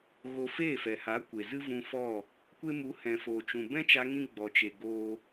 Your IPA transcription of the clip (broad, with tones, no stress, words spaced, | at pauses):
ɣo˧ feː˦˨fɛ˨ha˨˦kʷe˨ zɨ˦vũ˧fɔ˦˨ | kʷe˦mu˨˦ hɛ̃˨foː˨t͡ʃũ˨ bɛ̃˦t͡ʃa˧ŋĩ˧ ɡ͡bɔ˨t͡ʃe˨ ɡoː˦